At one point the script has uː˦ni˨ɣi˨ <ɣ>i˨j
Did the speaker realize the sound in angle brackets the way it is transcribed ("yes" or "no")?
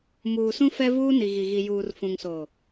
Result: yes